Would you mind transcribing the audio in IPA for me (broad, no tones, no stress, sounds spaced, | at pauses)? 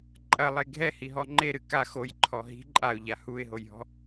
ǃʼ ɐ lˠ e ɡʱ ɛ h i ɦ ɔ ŋ͡ǃ e ɾ ɨ k a x o j ǃʰ ɔ ɦ i̤ ǃʼ a ʊ̯ ʎ a h u ɪ̯ ɦ o j ɦ ɔ̤